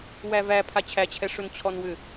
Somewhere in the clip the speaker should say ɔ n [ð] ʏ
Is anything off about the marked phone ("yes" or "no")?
yes